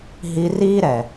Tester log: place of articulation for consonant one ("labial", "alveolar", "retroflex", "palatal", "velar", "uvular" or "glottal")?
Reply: glottal